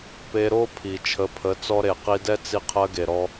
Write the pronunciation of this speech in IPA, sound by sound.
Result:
pe˧ ɾo˦pʰi˨ t͡ʃʰə˨˦pʰə˨˦ t͡sɔ˧ɾe˨qi˧dɛ˦ t͡si˧qʰɜ˧ɡe˨ɾɔ˧

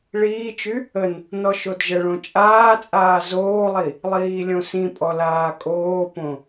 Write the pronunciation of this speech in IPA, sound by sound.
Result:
ɭiːt͡ʃy | ən | nɔʃodʒəɭõ t͡ʃʼaːt͡sʼaː zoːlˠi | lˠiːlʲõsĩpʼɔ laːkʼoːpõ

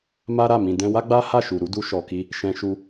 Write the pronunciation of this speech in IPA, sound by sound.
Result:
ma˦ɾa˦˨ mĩ˨dɛ̃˧wa˦ɡ͡ba˦ ha˦˨ʃu˨ɾu˨˦ du˧ʃɔ˨ki˧ | ʃɛ̃˧ʃu˧

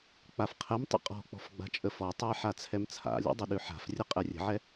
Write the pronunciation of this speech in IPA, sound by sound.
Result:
k͡pafqʰɛmtˤə̰ qʼɔ̤k͡pɔ̤f ɡ͡ba̤t͡ʃʼəfɔtˤɯj ħat͡sʰɛmt͡sʰa̰lʲɔ̰ dˤəɗʉħa̤frʲə qʼɛrʲə̤ʕɛ

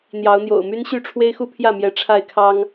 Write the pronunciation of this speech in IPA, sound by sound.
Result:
n̪jɑ˨˦ʊ̯n̪jo̰˨˩ʊ̯my˦n ɕy˥˨ʈ͡ʂʰwe˦ɪ̯xu˦ pʰjä˥˨mjɛ˨˦ ʈ͡ʂʰa˥˨ɪ̯kʰɑ˦ŋ

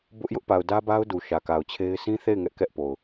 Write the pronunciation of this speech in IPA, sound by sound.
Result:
bʊ˦ʔ jʊ˦ʔpa˨ʊ̯dä˦ba˦ʊ̯ du˨ʃä˨ka˨ʊ̯t͡ɕʰe˦ɪ̯ sʰĩ˦θe˦˨ɪ̯ ŋɛ˦ʔ kɛ˦ʔpo˨ʊ̯

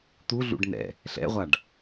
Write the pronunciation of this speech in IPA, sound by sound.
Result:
t̪uɮṵɖ nɛ̰ | ɬɛ̰ʁʷaɖ

